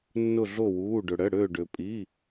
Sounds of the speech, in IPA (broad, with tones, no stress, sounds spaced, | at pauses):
nː ʊ˥˧ ɮ o˥˧ w uː˧˥˧ ɖ ʊ˧ ɽ ə˧˥˧ ɽ ø˥˧ ɖ ø˧ pʼ i˧˥˧